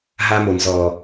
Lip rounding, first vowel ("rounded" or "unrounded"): unrounded